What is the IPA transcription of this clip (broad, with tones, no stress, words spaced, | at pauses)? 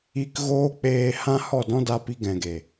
i˧k ɣoː˦k͡peː˧hã˦ hɔ˦˨dɔ̃˦da˧pi˧ ɡɛ̃˨ɡe˨